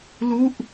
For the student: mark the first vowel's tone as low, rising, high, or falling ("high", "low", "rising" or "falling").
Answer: falling